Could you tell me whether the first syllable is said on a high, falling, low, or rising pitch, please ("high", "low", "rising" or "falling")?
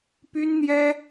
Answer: high